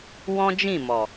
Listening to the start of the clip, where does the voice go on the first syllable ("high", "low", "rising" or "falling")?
high